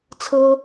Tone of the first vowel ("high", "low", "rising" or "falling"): high